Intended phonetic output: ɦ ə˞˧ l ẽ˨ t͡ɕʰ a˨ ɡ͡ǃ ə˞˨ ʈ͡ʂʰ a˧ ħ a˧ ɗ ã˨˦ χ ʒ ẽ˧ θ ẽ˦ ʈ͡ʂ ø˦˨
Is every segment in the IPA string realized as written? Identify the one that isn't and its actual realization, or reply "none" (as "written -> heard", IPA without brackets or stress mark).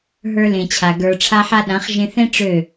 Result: ɡ͡ǃ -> ɡ